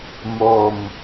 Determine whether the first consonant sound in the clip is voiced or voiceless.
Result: voiced